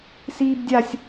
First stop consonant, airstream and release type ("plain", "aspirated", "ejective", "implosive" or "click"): plain